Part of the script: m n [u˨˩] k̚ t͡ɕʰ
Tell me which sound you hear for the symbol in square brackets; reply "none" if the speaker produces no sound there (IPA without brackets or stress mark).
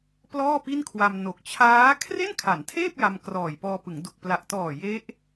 o˨˩